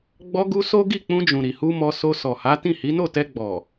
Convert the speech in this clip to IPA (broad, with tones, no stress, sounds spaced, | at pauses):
ɡ͡b ɔ˧ ɡ u˧ s o˦ ɡ i˦˨ k͡p ũ˧ d͡ʒ ũ˨ ɾ i˨ h u˧ m ɔ˧ s o˧ s ɔ˨ h a˨˦ t ĩ˦˨ h i˨˦ n o˦˨ t ɛ˧ ɡ͡b ɔ˨